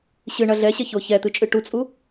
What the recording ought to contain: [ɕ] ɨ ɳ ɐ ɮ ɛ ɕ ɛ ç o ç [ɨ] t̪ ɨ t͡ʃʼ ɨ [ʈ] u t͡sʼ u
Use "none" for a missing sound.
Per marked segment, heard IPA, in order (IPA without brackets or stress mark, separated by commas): ɕ, ɛ, ʈ